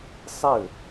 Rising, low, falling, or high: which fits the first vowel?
falling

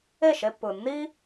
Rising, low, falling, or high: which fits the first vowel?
falling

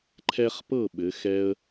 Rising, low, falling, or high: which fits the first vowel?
high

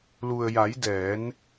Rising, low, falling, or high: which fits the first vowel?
low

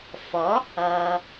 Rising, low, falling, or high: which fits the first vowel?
rising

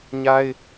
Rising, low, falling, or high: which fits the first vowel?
high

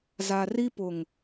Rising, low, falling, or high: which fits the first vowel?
low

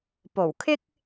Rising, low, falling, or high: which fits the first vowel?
low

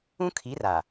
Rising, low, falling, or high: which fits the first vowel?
high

